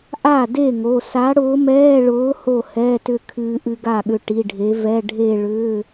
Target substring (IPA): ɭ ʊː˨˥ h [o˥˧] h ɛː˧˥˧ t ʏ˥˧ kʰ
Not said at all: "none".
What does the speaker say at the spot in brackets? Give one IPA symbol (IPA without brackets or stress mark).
o˥˩